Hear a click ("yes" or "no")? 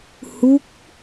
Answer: no